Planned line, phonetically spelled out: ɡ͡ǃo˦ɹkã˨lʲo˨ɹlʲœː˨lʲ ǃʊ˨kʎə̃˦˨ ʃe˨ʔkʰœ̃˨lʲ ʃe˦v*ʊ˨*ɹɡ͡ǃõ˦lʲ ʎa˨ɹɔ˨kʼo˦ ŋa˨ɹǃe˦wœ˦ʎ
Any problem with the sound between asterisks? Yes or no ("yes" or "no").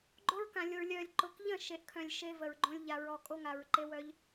yes